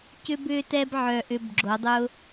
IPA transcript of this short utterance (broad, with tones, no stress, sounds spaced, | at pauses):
c ʏ˧ b ʏː˧ t ɛ˧ b ʕ œ˨ ʔ ʏː˧ b ɡ͡ǁ o˨˦ dˤ ʊ˦